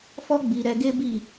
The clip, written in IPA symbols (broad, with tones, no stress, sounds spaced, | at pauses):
f ɔ˦ ɡ͡b i˧ ɾ ɛ˧ ɡ e˦ b i˦˨